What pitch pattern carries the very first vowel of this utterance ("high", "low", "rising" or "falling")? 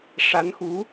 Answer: rising